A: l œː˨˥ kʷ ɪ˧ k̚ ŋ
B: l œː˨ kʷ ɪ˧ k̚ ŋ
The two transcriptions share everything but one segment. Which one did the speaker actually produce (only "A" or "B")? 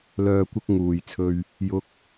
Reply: B